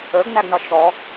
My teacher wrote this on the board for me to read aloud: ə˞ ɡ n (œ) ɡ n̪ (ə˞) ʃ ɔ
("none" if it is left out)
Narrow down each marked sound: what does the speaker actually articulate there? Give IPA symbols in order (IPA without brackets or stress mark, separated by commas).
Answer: æ, ʌ